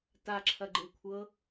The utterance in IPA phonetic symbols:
t a ǁʰ ɐ ɡ͡ǃ ɯ kʷʰ ɤ

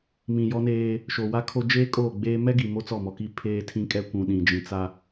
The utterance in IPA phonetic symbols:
m ĩ˨ j ɔ˦ n eː˦ | ʃ o˨ w a˦ kʰ o˦ d͡ʒ eː˦ kʼ oː˦˨ ɡ͡b eː˦ m ɛ˦ ɡ i˨ m o˦ t͡s ɔ˦˨ m ɔ˨ k i˦ pʰ eː˦ tʰ ĩ˦ kʼ ɛ˦ kʷ ũ˨ ɗ ĩ˨ d͡ʒ ĩ˨ t͡s a˦

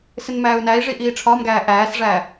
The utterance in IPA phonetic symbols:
s ɪ n m æː u̯ n æ i̯ ʐ i ʔ iː ʈ͡ʂʰ ɒː m ɡ æː ʔ æː s ʐ æː

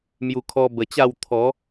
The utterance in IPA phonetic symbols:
m j u˨˩ kʰ ɔ˧ b ə˨˩ t͡ɕ a˥˧ w t̪ʰ ɔ˨˦

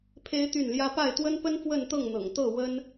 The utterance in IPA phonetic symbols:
pʰ e˥ ɪ̯ t̪ y˥˩ n l j ä˥ p a˥˩ ɪ̯ t̪ w ə˥ n p ə˥ n f w ə˥˧ n t̪ ɤ˥˩ ŋ n̪ ɤ̰˨˩ ŋ t̪ ɤ˥˩ w ə˥ n

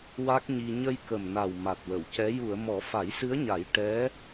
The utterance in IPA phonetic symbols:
w a˦˥ k̚ ɲ i˧ ɲ ə˧ j k ə˨˩ m n a˨˩ w m a˨˩ t̚ w ə˨˩˨ w c ɛ˧˥ j u˨˩˨ ə̯ m ɔ˨˩˦ f a˨˩˦ j s ɨ˧˥ ə̯ ɲ a˨˩˦ j ʈ ɛ˧˥

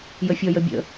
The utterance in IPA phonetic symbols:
j ə fʲ ɔ j ə bʲ ə̰

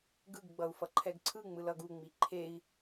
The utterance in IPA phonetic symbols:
ɡ ɯ ɡ ɡ͡b ʌ u̯ f ʌ ǃʰ ɛ ɡ ǀʰ ɯ ŋ͡m ɯ l ʌ ɡ u ŋ͡m i ǃʰ e i̯

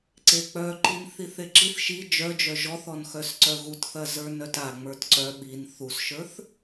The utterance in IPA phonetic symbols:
ǀ e k͡p œ ǃ i n θ i θ e ǁ i θ ʃ i d͡ʒ œ d͡ʒ œ ʒ ɔ θ ɔ n x œ s ǀ œ ɣ u t θ ɐ z ə˞ n œ t a ŋ͡m ə˞ t ǀ œ ɓ i n θ u s ʃ ə˞ θ

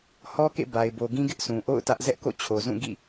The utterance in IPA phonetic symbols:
h ɔ˦ k ḛ˦˨ b a˨ ɪ̯ b o˨ ɡ ĩ˦ ɡ ɪ˦ ʔ sʰ ũ˨ ʔ o̰˦˨ ʊ̯ t ä˦ ʔ z ɛ˦ ʔ k o̰˦˨ t͡ɕʰ o˨ z ũ˦˨ ɡ ḭ˦˨

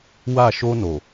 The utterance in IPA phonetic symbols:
w a˦˨ ʃ o˦ n o˨

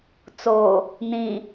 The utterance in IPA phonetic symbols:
t͡s o | n̪ ĩ

